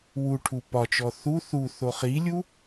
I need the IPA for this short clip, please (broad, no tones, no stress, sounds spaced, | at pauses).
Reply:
w u ʈʰ u p ɒ t͡ʃ ɔ θ u θ u θ o χ i lʲ u